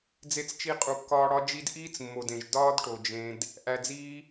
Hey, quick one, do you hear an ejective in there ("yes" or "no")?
yes